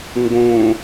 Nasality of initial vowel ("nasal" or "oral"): nasal